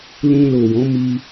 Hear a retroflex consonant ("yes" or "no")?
no